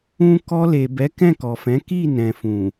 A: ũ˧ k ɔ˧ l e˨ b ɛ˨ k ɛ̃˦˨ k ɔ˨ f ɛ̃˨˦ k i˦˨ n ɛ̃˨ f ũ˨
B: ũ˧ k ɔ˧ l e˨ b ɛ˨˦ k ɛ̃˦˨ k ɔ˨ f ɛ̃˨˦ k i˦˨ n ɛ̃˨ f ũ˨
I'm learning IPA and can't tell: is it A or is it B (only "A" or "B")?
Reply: B